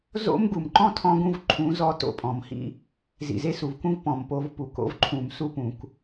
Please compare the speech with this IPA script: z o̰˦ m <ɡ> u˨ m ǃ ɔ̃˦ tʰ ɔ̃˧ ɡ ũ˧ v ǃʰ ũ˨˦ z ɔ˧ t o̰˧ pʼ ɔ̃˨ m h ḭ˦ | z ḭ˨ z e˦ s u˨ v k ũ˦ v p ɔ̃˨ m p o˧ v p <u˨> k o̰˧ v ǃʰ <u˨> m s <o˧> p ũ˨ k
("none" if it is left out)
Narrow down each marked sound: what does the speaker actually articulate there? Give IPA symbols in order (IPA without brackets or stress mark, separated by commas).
ɡ, u˨, ũ˨, u˧